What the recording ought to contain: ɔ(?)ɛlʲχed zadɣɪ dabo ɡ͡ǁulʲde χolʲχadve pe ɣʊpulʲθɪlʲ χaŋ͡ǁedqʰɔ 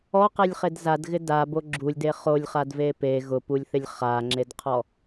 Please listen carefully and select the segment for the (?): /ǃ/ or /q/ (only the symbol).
q